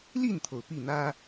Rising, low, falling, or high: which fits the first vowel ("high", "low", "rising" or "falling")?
falling